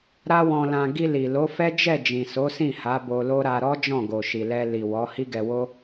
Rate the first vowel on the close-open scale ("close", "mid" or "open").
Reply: open